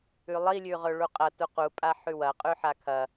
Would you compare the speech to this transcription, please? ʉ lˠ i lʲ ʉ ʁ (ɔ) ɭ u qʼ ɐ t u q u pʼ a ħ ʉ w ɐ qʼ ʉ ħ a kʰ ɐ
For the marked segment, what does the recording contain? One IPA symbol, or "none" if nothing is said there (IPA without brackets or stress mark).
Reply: ɵ